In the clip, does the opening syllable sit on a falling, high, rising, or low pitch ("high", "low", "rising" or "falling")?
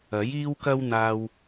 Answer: rising